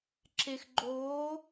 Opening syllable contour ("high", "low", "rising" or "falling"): low